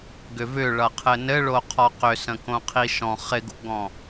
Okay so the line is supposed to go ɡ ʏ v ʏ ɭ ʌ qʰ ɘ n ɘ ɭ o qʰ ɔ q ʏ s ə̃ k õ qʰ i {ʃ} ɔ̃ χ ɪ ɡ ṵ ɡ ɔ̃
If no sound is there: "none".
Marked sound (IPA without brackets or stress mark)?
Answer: ʃ